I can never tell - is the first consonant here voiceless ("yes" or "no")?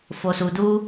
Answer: yes